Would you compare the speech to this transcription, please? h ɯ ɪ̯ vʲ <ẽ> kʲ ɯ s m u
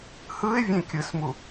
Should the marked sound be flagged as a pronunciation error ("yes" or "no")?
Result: no